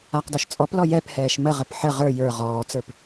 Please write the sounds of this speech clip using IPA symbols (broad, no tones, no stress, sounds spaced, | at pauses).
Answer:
a q d ɔ ʃ t͡sʼ ɔ p l ɔ j ɛ p h ɛː ʃ m ə ʁ ə p ħ ə ʁ ə˞ j ə˞ ʁ ɔː t͡s ə˞ p